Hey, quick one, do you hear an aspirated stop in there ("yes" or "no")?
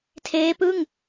yes